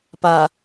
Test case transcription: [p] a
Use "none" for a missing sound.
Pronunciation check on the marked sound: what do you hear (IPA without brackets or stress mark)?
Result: p